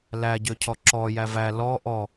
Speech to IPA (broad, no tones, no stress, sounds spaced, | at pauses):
l æ ɟ ø cʰ ɔ ǁ ɔ j æ v æ l ɔ ʔ ɔ